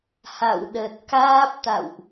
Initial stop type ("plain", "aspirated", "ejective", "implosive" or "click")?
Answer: implosive